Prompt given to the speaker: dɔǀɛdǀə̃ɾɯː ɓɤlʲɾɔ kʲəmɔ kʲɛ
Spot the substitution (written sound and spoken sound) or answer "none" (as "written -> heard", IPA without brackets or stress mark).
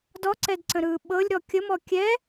none